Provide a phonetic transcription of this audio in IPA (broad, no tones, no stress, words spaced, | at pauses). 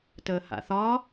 təːha̰θɒ